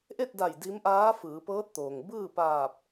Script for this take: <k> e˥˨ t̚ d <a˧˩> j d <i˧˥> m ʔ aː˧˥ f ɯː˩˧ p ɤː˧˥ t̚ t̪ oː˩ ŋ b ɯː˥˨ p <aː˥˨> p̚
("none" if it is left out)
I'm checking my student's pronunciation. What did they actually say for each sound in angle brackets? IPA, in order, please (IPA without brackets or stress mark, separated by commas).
ʔ, a˧˩, i˧˥, aː˧˩